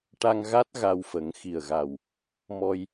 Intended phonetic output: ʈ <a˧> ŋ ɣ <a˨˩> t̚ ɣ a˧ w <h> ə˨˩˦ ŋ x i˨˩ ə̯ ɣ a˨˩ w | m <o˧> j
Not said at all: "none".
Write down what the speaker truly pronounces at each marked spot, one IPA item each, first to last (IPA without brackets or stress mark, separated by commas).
a˧, a˦˥, f, ɔ˧